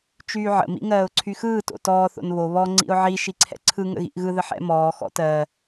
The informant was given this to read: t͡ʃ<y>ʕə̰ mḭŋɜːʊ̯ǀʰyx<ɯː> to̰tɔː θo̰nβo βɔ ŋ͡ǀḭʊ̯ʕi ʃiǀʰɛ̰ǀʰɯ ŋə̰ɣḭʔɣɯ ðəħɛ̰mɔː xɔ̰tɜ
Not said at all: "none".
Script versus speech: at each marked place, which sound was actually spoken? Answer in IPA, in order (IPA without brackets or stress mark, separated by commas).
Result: yː, ɯː